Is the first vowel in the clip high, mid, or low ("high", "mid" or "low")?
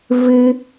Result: high